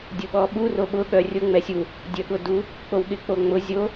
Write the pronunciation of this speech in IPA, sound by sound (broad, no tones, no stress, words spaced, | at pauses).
dʲʊɓɔɓu roɓʊ ɠœrʲʊ ŋ͡mɛsʲu | dʲœɠʊdu | k͡powɠɪk͡poŋ͡mʊ zʲo